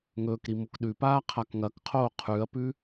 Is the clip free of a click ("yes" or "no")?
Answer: yes